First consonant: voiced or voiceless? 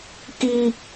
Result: voiceless